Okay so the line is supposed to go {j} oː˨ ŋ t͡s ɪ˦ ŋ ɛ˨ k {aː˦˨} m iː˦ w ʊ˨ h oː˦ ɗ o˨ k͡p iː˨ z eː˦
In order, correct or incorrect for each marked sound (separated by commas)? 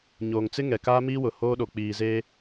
incorrect, incorrect